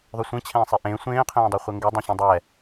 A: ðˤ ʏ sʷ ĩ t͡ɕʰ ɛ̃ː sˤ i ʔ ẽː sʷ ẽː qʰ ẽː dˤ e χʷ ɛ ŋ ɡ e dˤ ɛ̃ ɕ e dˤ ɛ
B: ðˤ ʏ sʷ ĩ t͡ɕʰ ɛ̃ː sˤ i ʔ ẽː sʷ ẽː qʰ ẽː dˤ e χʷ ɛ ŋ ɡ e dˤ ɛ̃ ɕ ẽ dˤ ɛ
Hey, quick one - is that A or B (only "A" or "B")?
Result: B